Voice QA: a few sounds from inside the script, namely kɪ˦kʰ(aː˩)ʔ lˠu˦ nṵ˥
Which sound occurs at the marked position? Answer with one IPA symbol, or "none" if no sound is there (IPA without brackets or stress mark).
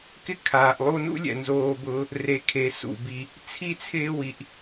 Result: aː˩